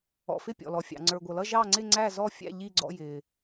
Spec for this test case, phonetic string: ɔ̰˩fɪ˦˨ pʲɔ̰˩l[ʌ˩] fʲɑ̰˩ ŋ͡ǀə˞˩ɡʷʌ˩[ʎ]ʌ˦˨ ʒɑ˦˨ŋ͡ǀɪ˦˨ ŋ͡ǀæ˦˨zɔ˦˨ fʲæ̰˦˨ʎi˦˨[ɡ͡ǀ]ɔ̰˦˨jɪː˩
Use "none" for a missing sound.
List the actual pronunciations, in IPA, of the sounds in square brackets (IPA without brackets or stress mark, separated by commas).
ɔ˩, l, ɡ͡ǀ